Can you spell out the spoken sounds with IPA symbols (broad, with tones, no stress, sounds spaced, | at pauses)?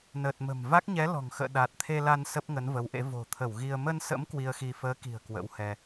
n əː˨˩ t̚ m ə̤˨˩ m v a˦˥ k̚ ɲ ɛ˨˦ l ɔ̤˨˩ ŋ x ə̰ː˧˨ ɗ a˨˩ t̚ t̪ʰ e˧ l a˧ n s ə˦˥ p̚ ŋ ə˨˦ n v ə˨˦ w ʔ ḛ˧˥ v o̤˨˩ t̪ʰ ə˧˩ w ɣ i˧ ə̯ m ə˧ n s ə̰˧˥ m k w i˧ ə̯ x i˧ f əː˨˦ k i̤˨˩ ə̯ k w ə̰˧˥ w h ɛ˧